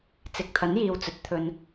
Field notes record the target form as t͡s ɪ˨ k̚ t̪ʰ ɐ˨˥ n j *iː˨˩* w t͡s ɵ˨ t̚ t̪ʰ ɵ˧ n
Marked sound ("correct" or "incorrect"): incorrect